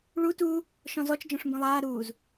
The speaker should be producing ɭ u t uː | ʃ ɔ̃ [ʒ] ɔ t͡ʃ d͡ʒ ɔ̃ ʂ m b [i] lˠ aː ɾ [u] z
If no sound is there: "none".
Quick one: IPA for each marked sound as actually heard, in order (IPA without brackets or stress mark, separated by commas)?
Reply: z, ĩ, uː